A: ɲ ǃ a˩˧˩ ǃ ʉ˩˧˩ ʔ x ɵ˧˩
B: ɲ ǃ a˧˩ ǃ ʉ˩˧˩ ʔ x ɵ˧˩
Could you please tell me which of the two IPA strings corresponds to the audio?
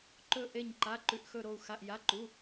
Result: A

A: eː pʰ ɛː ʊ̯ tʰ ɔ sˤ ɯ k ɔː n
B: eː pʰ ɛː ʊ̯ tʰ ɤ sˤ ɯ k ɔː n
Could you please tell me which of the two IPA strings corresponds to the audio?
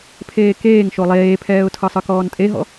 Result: B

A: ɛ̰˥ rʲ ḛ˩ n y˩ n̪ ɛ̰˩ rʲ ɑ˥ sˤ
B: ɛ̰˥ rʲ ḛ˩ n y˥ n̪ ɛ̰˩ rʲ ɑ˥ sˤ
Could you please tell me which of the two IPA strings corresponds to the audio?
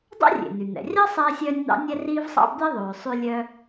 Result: A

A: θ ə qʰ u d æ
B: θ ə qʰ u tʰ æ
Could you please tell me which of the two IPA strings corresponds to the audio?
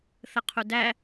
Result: A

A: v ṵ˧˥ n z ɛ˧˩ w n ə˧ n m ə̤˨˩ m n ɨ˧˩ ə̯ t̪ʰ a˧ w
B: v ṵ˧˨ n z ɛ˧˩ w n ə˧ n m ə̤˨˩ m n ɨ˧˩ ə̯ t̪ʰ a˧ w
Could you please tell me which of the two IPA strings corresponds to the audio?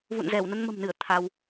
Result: B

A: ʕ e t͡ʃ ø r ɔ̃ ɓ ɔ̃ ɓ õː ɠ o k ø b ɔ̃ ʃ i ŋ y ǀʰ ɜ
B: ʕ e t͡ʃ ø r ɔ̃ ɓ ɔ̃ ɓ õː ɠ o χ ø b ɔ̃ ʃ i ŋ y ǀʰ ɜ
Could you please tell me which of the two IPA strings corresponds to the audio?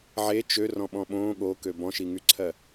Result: A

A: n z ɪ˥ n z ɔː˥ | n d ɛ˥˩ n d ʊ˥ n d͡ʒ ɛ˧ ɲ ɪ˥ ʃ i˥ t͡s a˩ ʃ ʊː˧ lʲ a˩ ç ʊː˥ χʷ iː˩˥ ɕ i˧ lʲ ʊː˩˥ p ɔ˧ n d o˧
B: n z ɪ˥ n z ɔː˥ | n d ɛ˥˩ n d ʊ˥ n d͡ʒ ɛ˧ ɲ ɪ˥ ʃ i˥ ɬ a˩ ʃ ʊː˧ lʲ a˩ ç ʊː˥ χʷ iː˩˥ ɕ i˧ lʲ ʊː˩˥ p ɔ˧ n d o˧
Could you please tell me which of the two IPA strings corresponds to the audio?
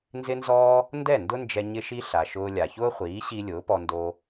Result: B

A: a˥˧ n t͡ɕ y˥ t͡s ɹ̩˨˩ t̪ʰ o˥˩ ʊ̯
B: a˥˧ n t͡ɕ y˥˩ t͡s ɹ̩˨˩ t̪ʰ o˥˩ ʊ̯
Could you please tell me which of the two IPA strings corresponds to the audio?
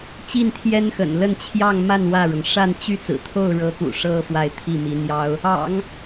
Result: B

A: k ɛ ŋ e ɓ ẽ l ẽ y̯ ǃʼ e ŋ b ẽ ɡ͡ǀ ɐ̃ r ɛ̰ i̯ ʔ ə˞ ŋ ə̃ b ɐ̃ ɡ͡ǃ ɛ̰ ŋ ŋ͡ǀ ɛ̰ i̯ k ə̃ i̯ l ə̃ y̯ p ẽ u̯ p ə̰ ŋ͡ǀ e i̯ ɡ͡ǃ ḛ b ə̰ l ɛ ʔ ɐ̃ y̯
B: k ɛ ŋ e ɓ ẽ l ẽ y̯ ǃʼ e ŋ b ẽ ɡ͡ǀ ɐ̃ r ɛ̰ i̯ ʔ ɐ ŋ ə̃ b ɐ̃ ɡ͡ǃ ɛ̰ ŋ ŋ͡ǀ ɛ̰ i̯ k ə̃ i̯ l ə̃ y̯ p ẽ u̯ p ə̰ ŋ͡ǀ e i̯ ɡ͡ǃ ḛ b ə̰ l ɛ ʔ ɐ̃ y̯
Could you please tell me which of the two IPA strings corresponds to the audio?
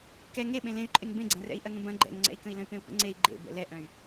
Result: B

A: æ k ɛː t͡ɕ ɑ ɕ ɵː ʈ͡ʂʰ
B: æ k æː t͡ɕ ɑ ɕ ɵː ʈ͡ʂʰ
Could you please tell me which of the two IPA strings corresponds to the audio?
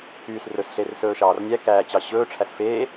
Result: B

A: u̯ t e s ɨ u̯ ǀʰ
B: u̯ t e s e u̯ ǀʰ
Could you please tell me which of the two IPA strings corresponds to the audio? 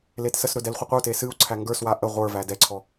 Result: A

